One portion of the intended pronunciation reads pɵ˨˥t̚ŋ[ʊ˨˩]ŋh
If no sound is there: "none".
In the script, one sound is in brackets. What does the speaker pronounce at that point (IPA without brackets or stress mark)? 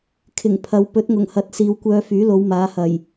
ʊ˨˩